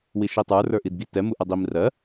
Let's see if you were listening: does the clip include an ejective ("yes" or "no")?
no